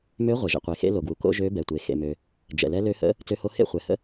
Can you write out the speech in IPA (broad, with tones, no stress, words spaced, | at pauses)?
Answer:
mø˧˥ ʁʷe˩ʒə̰˩qʷe˩xḛ˧˥ lo˩ɡwu˩ ko̰˧˥ʒø˧˥ bɛ˩tʷe˩ xḛ˩mø˩ | d͡ʒɛ̰˩lɛ˧˥lø˧˥hə̰˧˥ | t͡sø˧˥ho˧˥ hḛ˧˥χʷɛ˩hə̰˧˥